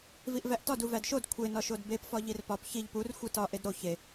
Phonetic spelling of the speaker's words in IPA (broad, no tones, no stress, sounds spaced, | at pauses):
v i ʔ v æ ʔ t ɒ d u v æ d ʃ o d kʷʰ e n ɒ ʃ o d b e p f ɒ ʎ i r p ɒ p ç i ʎ p u r xʷ i t ɒ ʔ e d ɾ o ç e